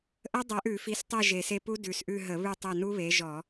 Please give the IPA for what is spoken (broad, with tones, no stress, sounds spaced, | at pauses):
ʔ ə˦˥ dˤ ɛ˨˦ ʔ ʉ˧˩˧ f i˨˦ s tˤ e˦˨ ʒ e˨˩ s e˦˨ p u˦˥ d ʉ˨˩ s ʔ ʉ˦˨ ɦ ə˧˩˧ β ʉ˦˨ tˤ ɛ˦˨ n u˦˥ β e˨˦ ʒ ɔ˧˩˧